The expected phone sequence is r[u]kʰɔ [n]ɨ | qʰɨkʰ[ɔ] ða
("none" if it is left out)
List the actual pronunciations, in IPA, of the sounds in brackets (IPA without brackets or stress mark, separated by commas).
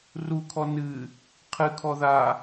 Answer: u, n, ɔ